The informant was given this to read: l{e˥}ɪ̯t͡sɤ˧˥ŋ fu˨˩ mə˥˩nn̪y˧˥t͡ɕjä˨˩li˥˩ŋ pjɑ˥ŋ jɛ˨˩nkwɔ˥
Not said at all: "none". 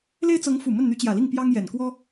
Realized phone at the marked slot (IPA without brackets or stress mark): e˥